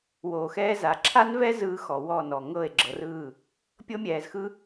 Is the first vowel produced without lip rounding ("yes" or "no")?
no